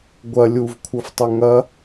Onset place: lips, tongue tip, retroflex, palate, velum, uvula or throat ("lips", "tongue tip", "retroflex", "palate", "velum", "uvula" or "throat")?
velum